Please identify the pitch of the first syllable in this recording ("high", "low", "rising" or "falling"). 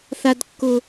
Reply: high